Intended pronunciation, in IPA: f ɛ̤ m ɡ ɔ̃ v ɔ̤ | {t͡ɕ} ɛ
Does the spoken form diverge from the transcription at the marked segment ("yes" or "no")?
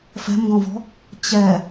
no